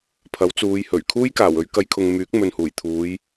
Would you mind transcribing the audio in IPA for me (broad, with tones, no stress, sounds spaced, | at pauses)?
pʰ ɐ˨˥ w t͡s uː˨˧ j h ɵ˨˩ ɥ kʰ uː˥ j k aː˨˩ w ɵ˨˧ ɥ k ɐ˨˧ j kʰ ʊ˨ ŋ m yː˨˥ k̚ m ɵ˨ n h uː˨˩ j t̪ʰ uː˨˧ j